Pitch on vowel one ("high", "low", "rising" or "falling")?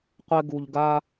high